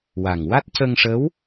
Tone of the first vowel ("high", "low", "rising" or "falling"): low